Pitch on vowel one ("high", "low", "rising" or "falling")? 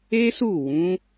high